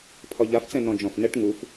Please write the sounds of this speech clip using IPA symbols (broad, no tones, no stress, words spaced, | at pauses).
pʰɒʎaft͡sɛ̃ nɔ̃d͡ʒɔ̃fnɛʈ ŋuf